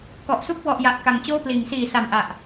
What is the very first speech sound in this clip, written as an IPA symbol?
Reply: k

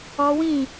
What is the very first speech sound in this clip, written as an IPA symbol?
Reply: ɔ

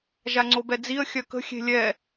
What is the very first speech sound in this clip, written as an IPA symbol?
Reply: ʒ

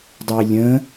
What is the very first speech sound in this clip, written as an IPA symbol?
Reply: dˤ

